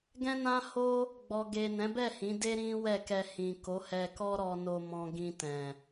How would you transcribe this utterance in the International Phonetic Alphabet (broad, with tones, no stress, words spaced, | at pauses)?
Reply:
ɡɛ̃˦nã˦ho˦ | ɡ͡bɔ˧ ɡe˨ nɛ̃˨˦bɛ˦˨ hĩ˨˦de˦ ɾĩ˦wɛ˦˨kɛ˧ hĩ˨ko˨˦hɛ˧kɔ˦ ɾɔ˧no˧ mɔ̃˧ɡĩ˧ tɛ̃˨